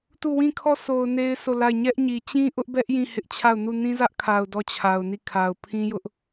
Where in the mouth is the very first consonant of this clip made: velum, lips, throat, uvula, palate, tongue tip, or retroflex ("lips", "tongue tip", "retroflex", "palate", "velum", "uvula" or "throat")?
tongue tip